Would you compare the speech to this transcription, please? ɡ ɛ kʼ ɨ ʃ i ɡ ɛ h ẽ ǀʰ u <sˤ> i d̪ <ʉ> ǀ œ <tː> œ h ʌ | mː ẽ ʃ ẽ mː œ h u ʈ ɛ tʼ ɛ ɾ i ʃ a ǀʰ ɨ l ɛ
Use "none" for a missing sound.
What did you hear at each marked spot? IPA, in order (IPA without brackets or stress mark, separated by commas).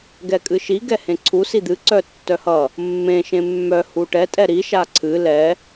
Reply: s, ɨ, tː